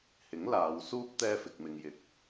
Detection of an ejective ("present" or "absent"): absent